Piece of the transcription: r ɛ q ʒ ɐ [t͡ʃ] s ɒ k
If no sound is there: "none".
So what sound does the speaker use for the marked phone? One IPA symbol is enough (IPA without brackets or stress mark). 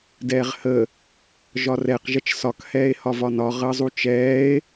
t͡ʃ